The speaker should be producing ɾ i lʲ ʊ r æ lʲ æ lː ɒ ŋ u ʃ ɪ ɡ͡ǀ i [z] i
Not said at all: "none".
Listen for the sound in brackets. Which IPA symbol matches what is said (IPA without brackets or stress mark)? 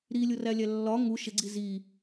z